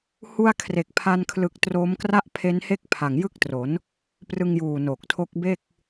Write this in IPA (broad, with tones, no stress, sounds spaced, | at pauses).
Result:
h u˧ a̯ kʰ r e˨˩ k̚ pʰ a˧ n kʰ l ɯ˨˩ k̚ t r oː˦˥ m k r a˥˩ ʔ pʰ e˦˥ n h e˥˩ k̚ pʰ a˨˩ ŋ j ɯ˥˩ k̚ t r o˩˦ n | p r ɯ˧ ŋ j uː˨˩ n oː˨˩ k̚ tʰ o˦˥ k̚ b e˥˩ k̚